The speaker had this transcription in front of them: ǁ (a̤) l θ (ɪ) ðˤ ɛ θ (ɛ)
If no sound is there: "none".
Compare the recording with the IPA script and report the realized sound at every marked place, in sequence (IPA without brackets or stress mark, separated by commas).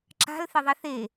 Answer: a̤, ɪ, e